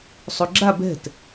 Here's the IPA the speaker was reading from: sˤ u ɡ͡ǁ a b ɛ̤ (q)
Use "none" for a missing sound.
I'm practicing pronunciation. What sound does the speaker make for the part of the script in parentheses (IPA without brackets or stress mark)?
t